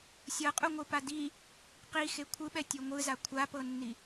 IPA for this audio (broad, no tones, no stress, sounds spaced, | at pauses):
sʲ ɤ qʼ u ŋʷ ɯ p a d i | q i x e kʷʰ ɯ ɓ ɛ tʲ o ŋʷ ɯ z a kʷʰ a p ɤ nː i